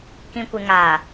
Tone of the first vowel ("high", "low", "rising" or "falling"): low